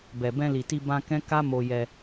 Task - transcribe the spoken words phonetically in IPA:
bɛ˨bɛ̃˧li˨ti˧ bã˧ kɛ̃˦ ka˦ mo˧jɛ˧

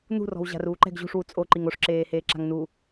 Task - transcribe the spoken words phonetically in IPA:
nṳrɔ̤w ʑa̤ruːǃɛ̤ɡ ʑṳʂwu t͡sʼoǃiŋ oʂǁeːheːǁa̤ŋ nu

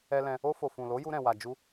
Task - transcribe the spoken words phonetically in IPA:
ɛ˧lɛ̃˧ | o˧fo˨ fũ˨lo˨˦ju˧ɾɛ̃˨ wa˨d͡ʒu˧

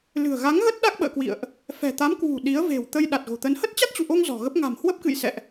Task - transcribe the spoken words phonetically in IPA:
lɨ̤˨˩ə̯ɣa˨˦ŋɣə˦˥t̚ ɗa˦˥k̚ɓə̰ː˧˨kwḭ˧˨ə̯ʔ | fɛ̤˨˩t̪a˨˦m kwṳ˨˩ ɗi˨˦ə̯ ve̤˨˩wt̪ə˧j ɗa˨˩t̚ɣo̤˨˩t̪ə˨˦n hə˦˥t̚t͡ɕa˦˥t̚t͡ɕṵ˧˨ʔo˧ŋ zɔ̤˨˩ɣə˦˥p̚ ŋa̤˨˩mhwə˦˥p̚kɨ̰˧˨j sɛ̰˧˨ʔ

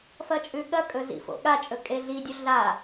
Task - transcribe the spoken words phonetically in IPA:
fɐt͡ʃʼʉɠɐkʼɵ zḭfo̰ɠat͡ʃʼɵ kʼeɮidʲɵ ɮa

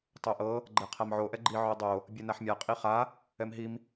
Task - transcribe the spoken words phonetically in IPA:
tˤoʔɤ | ɡ͡ǃɛqʰamʕo ʔɛɡ͡ǃi ʕodˤo | bʲɛnaħmʲa qʼiχa | ɛmɦim

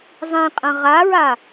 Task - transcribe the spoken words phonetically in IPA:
zˤĩqʼɐ̃ ʁaɹa

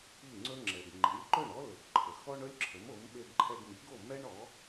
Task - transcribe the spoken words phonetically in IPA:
i˥˩ŋ͡ǀɵ˥ŋ͡ǁɛ˩ɡ ŋ͡ǃi˩˥lʲǃɵ˥˩ɳɔ˥ lɵ˩ɡ ǃʰə˩xɔ˥ɳɵ˥lʲ ǁʰə˩˥mo˩˥m ɓe˧ɡǃʰɛ˧ɡmi˩˥ɡo˥˩ mɛ˥ɳɔ˩˥

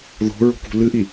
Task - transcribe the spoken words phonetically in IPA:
ðo̤ɹo̤kṳ lɨʔi

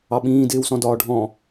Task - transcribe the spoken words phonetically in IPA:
ɑɓĩː dɪːwsɔ̃dɒːɖʱɔ̃

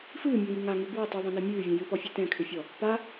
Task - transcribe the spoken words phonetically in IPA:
fɨːmʲɔŋi ŋaŋʉ bwɔ tˤʉðˤẽnɛ mʲʉːvʲɛ̃ jɨpɔfʲe tɛ̃kʰʏfʲɔ | pa

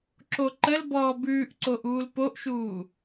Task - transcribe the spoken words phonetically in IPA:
ǁoǃəlbɔː bʉːʔǀoʔ uːlpoʔʃuː

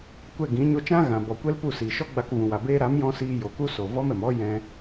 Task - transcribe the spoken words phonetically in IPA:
kʷɛ˦˨ɡĩ˨˦ ɲo˧t͡ʃã˦ ɣã˨bɔ˨kʷɛ˦lpu˦˨ siː˨ʃɔ˦ɡ͡ba˧k vũ˨wa˨ beː˧ɾa˨˦mjɔ̃˧ siː˧jo˨ku˦ so˨ vɔ˦mɛ˨m ɔ˦ jɛ̃˧

